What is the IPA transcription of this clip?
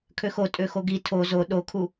kʰ ø x o tʼ ø x o ɡ i tʰ o z o ɗ o kʰ u

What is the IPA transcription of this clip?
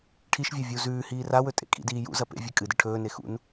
ʈʰ i ʃ vʲ a vʲ u z ʉː h iː r a w ɵ tʼ ḛ kʼ ḭ d iː j ṵ z ɐ p ḛ vʲ e kʼ ɨ d ɨ ʈʰ ɵː n e x ṵ n

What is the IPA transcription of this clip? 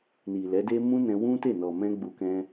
n i˨ l ɛ˨˦ d e˦ m ũ˦ n ɛ̃˧ w ũ˦ t e˦˨ n ɔ˨ m ɛ̃˧ ɡ͡b u˧ k ɛ̃˧

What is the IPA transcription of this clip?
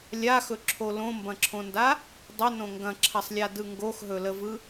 lʲ a x ɵ ǁʰ o l õ m b ɐ̃ ǁʰ õ n d a | dˤ ɵ n õ ŋ ɡ ɐ̃ ǁʰ ɐ sˤ lʲ a d ɯ ŋ ɡ o x ɦ ɵ l ə v ɯ

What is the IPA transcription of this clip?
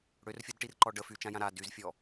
ɽ ø r fʲ o d ʈ i r ǃ ɔ ɖ ə f y t͡ʃ ã j ã ɾ a d y z fʲ ɔ

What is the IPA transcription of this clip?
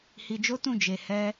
h i˧ d͡ʒ o˦ t ũ˦˨ d͡ʒ e˧ h ɛ˦

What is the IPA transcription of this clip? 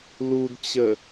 l u d t͡ɕ ə

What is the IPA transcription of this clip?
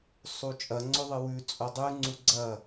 sˤ u t͡ʃʼ ɐ ŋ͡ǀ o ðˤ ɨ w ʉ t͡sʼ o dˤ ʉ ŋ͡ǀ u ɡ͡ǀ ɐ

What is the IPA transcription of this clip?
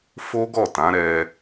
f o˦ ɡ ɔ˦˨ t ã˨˦ ɾ ɛ˧

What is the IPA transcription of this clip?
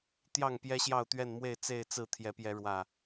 t̪ j ɑ˥˨ ŋ p j ɛ˦ ɕ j ɑ˥˨ ʊ̯ t̪ ɥ ɛ˥˨ n m w e˥˨ ɪ̯ t͡s e˥˨ ɪ̯ t͡s ɹ̩˥˨ t̪ʰ j ɛ˨˦ p j ɛ˨˦ ɻ w ä˨˩

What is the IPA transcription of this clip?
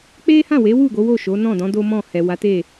k͡p e˦ h ã˦˨ w e˨˦ w u˦˨ ɡ o˨˦ w o˦˨ ʃ o˨˦ n ɔ̃˦˨ d ɔ̃˨˦ d o˦ m ɔ̃˦˨ h ɛ˨ w a˨˦ t e˦˨

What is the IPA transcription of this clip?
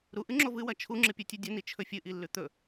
ɾ u ʔ ɨ ŋ͡ǁ o v ɨ w ɐ t͡ʃʰ u ŋ͡ǁ ɨ pʲ u tʲ u dʲ ɐ n i t͡ʃʰ ɵ fʲ ɨ ʔ i lː ʉ t̪ ɵ

